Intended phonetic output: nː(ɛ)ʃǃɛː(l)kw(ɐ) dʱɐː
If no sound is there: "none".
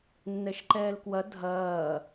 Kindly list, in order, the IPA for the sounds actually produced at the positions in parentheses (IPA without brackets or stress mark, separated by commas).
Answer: ɛ, l, ɐ